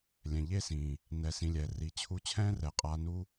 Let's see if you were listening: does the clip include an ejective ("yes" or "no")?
yes